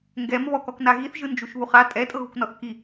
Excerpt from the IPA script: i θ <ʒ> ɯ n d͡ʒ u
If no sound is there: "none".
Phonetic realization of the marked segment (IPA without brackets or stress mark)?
ʒ